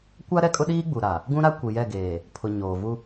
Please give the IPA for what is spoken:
kʷ a˦ ɾ ɛ˦ kʼ ʊ˦ ɗ iː˦ ɡ͡b u˨ ɾ a˨ | ɡ ũ˦ ɾ a˦ kʷ i˨ j ɛ˦˨ ɡ eː˨ | pʰ ʊ˨ ɲ oː˨ v u˦

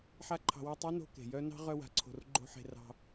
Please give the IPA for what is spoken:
ħ a˦ ǃʰ ɑ̤˧ w a˦ tˤ o˦ n o̤˧ k e̤˨ j œ˦ n ɑ̤˦ ʁ œ˧ w a̤˨ ǀʰ o̤˨ r ɡ͡ǃ o̤˦ ħ e̤˧ r ɑ̤˧

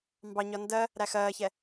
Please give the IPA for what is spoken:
m b ɑ ɲ ɒ n d ɜ | ɾ æ x ɜː ç ɛ

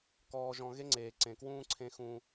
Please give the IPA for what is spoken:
k ɔː˨ ʒ ɔ̃˨ ɣ e˦ ŋ͡ǀ eː˨ ǀ ẽ˨ k w ũː˦ ǀʰ ẽ˦ x ũ˦

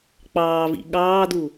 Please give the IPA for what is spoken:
k͡p ɑː v ḭ ɠ ɑː d u

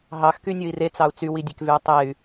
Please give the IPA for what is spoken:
ɦ ɑ x k y nʲ o i̯ r e t͡s ɑ u̯ t͡s y w i dʲ e k v y u̯ tˤ e y̯

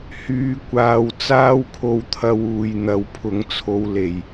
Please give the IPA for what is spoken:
h yː˧ kʷ aː˧ w t͡s aː˥ w kʰ o˧ w t̪ʰ ɐ˧ w uː˨ j n̪ ɐ˨˥ w pʰ ʊ˨˥ ŋ t͡sʰ o˧ w l e˨˩ j

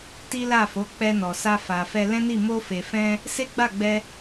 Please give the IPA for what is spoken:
t i˦ l a˦˨ f o˨˦ k͡p ɛ˧ n ɔ˨ s a˧ f a˨ f ɛ˧ l ɛ̃˦ n i˦˨ m o˧ f e˨ f ɛ̃˧ | s e˦ ɡ͡b a˦˨ ɡ͡b ɛ˧

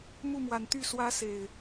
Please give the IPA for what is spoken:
m u˥˨ m w a˨˦ n t̪ y˥˨ s w ä˦ s e˨˩ ɪ̯

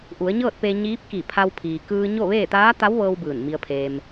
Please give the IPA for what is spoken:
ʔ u˩˧ ə̯ ɲ ɤː˥˨ t̚ p e˧ ɲ iː˧˥ p̚ k i˧˩ pʰ a˧ w pʰ iː˩ k ɯː˧ ɲ o˥˨ ʋ eː˥˨ t̪ aː˧˥ t̪ a˧˥ w ʋ ɤː˧ w b ɯː˧˩ n m i˧ ə̯ pʰ eː˧ m

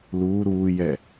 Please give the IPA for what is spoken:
l uː ɾ uː j ɛ

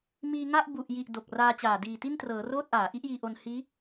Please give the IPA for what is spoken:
m iː˧ ŋ a˥˩ ʔ b u˨˩ ʔ j i˨˩ ʔ d o˨˩ k̚ r aː˧ t͡ɕ aː˨˩ d iː˨˩ t i˥˩ n t r ɤː˩˦ r oː˥˩ t̚ ʔ aː˩˦ ʔ i˦˥ ʔ j iː˧ ʔ o˧ n h iː˦˥

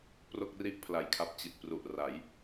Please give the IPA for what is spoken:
p r o˥˩ k̚ r i˥˩ ʔ pʰ l a˨˩ j kʰ a˦˥ p̚ t͡ɕ i˨˩ t̚ p r u˨˩ ʔ r a˩˦ j

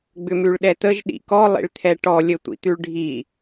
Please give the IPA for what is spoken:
ɡ͡b ʏ m ʉ ɭ ɗ ɛ t̪ ə ʒ ɗ ḭ k ɔ lˠ ḭ ɭ t̪ʰ ɛ ʈ ɔ lʲ ə tʷ ḭ t̪ ʉ ɭ ɖʱ i

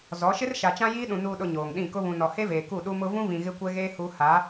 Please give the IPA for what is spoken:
z ɔ˨˦ ʃ ɪ˦ r ʃ a˨ t͡ʃ ã˦ j iː˦ ɗ ũ˨ n uː˨ ɗ ʊ˨ ɲ oː˨ ŋ ɗ ĩ˦˨ k ʊ˦ β ũ˨ n ɔ˨ h e˦ v eː˨ k u˦˨ ɗ u˦ m ʊ˦ v ũ˦ v ĩ˨ ɣ ɪ˦ kʷ ɛ˦ ɣ eː˦ h u˦ h a˨˦

